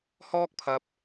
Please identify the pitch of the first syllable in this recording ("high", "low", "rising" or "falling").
high